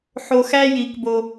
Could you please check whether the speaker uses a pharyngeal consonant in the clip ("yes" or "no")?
yes